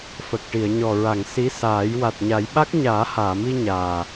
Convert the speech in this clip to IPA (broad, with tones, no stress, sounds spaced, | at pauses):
f ə˨˩ k̚ ʈ i˨˩˨ ə̯ ɲ ɔ˨˩ ɹ a˨˩˨ ŋ s i˧˥ s aː˨˩˦ j w a˨˩ t̚ ɲ a˨˩˦ j ɓ a˦˥ k̚ ɲ aː˨˩˦ h aː˨˩˨ m i˧ ɲ aː˨˩